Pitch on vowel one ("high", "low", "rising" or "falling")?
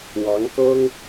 rising